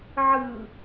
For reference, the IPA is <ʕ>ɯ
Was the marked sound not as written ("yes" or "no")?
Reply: no